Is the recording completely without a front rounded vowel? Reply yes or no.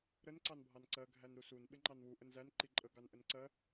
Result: yes